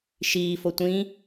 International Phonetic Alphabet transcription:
ʃ iː f o tʷ ĩ

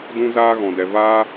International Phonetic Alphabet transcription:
d ũ˧ z aː˧ ɣ ɔ̃˨ d ɛ˨ v aː˧

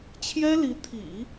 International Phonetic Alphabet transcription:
t͡ɕʰ j ɛ˥ l i˧˥ t̪ʰ ḭ˨˩˦

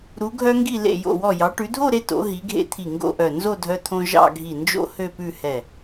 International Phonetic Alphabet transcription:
ɾ u˩˧ ɡʱ œ˧ ŋ ɡ i˧˩ l ḛ˧˩ j o̰˧˩ w ɔ˧˩ j ɑ˩˧ ʈ ʉ˩˧ dʱ o˥˧ ɾ e˧ t o̰˩˧ ɦ i˩˧ ɡʱ ḛ˧ t̪ʰ i˧˩ ŋ ɡ o̰˥˧ ʔ œ˧˩ n z o˥˧ dʱ œ˧ t̪ʰ õ˧ ʒ ɑ̰˥˧ ɡʱ i˧˩ n d͡ʒ o̰˥ h ø˥˧ p ʉ˥˧ h ɛ˧˩

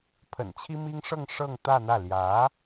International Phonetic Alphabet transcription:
pʰ ə̰˨˩ n t͡ɕʰ i˥ m i˥ ŋ ʂ ɤ˥˧ ŋ ʂ ɤ˥˧ ŋ t̪ ä˥˧ n̪ ä˥˩ l j ä˧˥

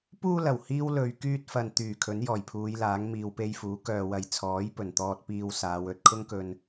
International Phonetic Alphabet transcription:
p uː˧ l ɐ˨˩ w h iː˥ w l ɵ˨˧ ɥ k yː˥ t̚ f ɐ˧ n t̪ yː˨˩ kʰ ɵ˨˥ n j ɔː˨˩ j pʰ uː˨˧ j l aː˨˥ ŋ m iː˧ w p e˥ j f uː˨˥ k œː˨ w ɐ˨ j t͡sʰ ɔː˨˥ j p ɵ˨˩ n t̪ ɔː˧ t̚ p iː˧ w s aː˨˧ w ɵ˨˥ t̚ kʰ ʊ˥ ŋ k ɵ˧ n

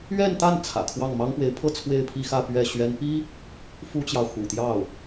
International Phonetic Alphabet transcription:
ɥ ɛ˥˧ n t̪ a˥˩ n t͡sʰ ä̰˨˩ kʰ w ɑ˥˩ ŋ m ɑ˥ ŋ p w e˧˥ ɪ̯ pʰ ɤ˥ t͡sʰ w e˥˧ ɪ̯ pʰ i˥˧ x ä˥˧ p ɥ ɛ˥˩ ɕ ɥ ɛ˥ n p i˥ | f u˥ t͡ɕ j ɑ˨ ʊ̯ x ṵ˨˩ t̪ j ɑ˥˩ ʊ̯

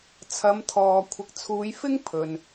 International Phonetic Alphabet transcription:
t͡sʰ ɐ˨˧ m t̪ʰ ɔː˨ kʷʰ ɪ˨˥ k̚ t͡sʰ uː˨˧ j f ɪ˥ ŋ pʰ ɵ˨ n

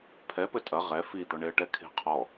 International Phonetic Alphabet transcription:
pʰ ɛ p ɘ tʼ ɐ ʁ ɛ f i d̪ ɔ ɳ e ə̯ ʈ ɛ kʰ e̤ qʰ ɔ

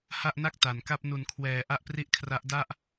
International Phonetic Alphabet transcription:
h a˥˩ ʔ n a˥˩ k̚ t a˩˦ n k a˥˩ p̚ n u˩˦ n kʰ w ɛː˩˦ ʔ a˥˩ ʔ p r i˥˩ ʔ kʰ r a˦˥ ʔ d a˥˩ ʔ

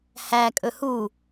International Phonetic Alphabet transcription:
h æ kʼ ɵ h u

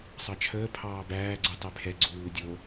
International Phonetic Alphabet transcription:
sˤ ɑ t͡ʃʰ əː pʰ ɑː b æː ɡ͡ǀ u tˤ e pʰ ɛ ɡ͡ǀ uː dʲ o

